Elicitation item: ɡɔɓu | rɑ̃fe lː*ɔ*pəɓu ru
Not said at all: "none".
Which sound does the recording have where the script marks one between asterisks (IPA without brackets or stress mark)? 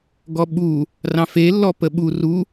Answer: ɔ